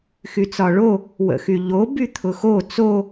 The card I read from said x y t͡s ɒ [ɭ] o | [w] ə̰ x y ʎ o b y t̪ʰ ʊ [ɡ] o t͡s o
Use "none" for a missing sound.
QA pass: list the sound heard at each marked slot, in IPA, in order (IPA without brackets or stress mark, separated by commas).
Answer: ɭ, w, x